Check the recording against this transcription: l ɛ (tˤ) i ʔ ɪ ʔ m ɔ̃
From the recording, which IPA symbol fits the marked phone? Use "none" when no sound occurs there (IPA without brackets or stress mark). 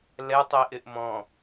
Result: tˤ